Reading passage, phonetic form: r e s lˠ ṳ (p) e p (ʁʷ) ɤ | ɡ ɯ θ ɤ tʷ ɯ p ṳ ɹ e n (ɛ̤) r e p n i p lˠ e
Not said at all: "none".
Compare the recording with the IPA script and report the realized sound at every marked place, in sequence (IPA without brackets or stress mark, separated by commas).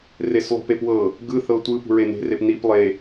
p, w, e̤